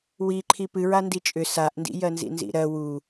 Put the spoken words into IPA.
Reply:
w i ǃʰ i p ɨ ɹ a n d i t͡ʃʼ ʏ s a ʔ n d ḭ j ɜ n z ḭ n z ḭ ɾ ɜ w u

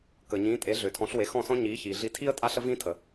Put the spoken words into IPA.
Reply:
k əː˩ ɲ ĩː˩˥ tʼ e˩˥ ɮ ʏː˩ tʰ ɔ̃˩˥ ɬ w e˩˥ x ɔ̃˥˩ s ɔ̃˥ ɲ iː˩˥ ç iː˩ ɮ i˧ tʰ i˥ ə̯ tʼ a˥ ɬ ə˥ v ĩː˥ tʰ ə˩

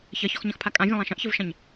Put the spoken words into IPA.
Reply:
ç ɐ ç ɔ x ɲ ɐ̃ x pʰ a kʼ ã vʲ ə̃ lˠ ã ʃ ɐ̃ ʔ ç ə v ʃ ɐ̃ ɲ

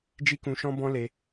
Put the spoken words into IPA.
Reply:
d͡ʒ i˦ k ũ˧ ʃ ɔ̃˦ b ɔ̃˦ l e˧

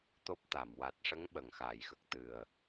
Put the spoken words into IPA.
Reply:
t̪ o˦˥ p̚ t̪ a˨˩˨ m w a˨˩ t̚ ʂ ə˧˥ ŋ ɓ ə˨˩ ŋ x aː˨˩˨ j x ə˨˩ k̚ t̪ ɨ˨˩ ə̯

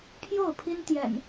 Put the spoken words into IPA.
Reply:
pʰ j o˥˨ ʊ̯ pʰ i˦ n t̪ j ɛ̰˨˩ n

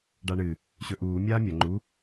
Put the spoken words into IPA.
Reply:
ɖ a ɳ ɨ | ɕ ɵ ʔ uː mʲ aː mʲ ɐ ŋ͡ǃ u

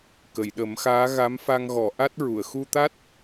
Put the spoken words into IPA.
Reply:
k ə˨˩˨ j ɗ ə˨˩˦ m x aː˧˥ ɣ a˧˥ m f a˧ ŋ ɣ ɔ˨˩˨ ʔ a˦˥ t̚ ɹ u˨˩˨ ə̯ x u˧ t̪ a˦˥ t̚

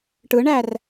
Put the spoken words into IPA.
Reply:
ʈ ɯ ɳ æ r

